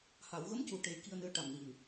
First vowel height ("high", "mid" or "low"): low